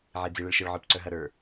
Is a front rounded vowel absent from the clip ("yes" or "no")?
no